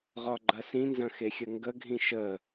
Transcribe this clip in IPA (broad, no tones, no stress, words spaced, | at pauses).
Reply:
ʁɒɡ͡ǃɐsĩnzɐ̃ xexʲəŋɡəɡʱĩ ʃə